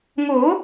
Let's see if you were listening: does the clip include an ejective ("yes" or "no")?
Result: no